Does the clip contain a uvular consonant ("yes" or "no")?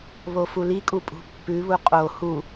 yes